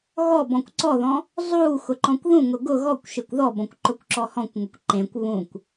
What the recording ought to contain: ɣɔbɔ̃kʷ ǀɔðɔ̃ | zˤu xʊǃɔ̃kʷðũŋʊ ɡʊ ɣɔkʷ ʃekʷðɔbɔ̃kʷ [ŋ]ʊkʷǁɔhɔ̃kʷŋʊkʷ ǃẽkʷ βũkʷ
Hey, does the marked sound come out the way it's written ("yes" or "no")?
no